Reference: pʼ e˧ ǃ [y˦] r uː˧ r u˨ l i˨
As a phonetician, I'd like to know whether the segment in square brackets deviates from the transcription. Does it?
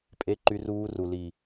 yes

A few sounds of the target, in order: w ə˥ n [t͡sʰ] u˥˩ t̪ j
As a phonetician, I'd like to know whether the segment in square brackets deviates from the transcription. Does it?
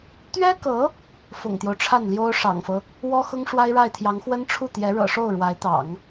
yes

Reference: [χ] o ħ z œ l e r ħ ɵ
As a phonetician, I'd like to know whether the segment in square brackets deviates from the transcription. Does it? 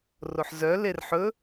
yes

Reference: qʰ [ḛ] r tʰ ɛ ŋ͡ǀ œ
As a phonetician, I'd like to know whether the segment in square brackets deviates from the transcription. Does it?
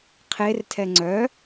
yes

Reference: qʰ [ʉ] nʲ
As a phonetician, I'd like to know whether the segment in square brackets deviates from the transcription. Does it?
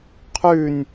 no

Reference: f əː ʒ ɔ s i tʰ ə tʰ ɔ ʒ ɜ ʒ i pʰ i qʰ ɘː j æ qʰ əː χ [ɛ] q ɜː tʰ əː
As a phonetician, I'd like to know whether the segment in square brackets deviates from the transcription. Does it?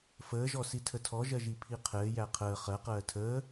yes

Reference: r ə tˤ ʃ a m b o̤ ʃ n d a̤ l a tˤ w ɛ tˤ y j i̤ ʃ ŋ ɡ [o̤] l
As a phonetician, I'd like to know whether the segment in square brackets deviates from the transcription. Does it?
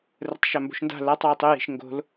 no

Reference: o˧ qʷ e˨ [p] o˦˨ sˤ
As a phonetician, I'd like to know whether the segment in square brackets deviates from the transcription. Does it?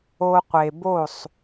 yes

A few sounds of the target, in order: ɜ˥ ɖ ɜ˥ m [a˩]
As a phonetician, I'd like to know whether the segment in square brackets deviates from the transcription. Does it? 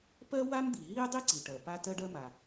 no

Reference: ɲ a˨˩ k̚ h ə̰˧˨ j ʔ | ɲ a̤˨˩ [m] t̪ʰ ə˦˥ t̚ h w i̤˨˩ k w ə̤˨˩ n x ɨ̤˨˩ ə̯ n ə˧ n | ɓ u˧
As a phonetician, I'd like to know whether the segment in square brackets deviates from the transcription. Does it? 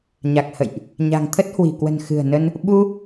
yes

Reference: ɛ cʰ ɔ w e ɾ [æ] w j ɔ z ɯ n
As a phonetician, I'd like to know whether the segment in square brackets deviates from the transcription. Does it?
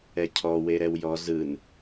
yes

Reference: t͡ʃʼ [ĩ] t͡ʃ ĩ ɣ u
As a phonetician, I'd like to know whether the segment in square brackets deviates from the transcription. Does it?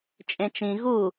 yes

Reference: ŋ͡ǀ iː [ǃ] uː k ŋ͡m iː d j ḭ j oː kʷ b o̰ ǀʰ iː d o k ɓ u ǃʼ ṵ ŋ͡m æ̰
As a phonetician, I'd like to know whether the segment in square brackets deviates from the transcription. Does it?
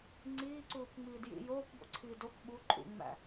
yes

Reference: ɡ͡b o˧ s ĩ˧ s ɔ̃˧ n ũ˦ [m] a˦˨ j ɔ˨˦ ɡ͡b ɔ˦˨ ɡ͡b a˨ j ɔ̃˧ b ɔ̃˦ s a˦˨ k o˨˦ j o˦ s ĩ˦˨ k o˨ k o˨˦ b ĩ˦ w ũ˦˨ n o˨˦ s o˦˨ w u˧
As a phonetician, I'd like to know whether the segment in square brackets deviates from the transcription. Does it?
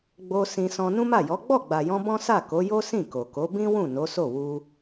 no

